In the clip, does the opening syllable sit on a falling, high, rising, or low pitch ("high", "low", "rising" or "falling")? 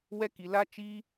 high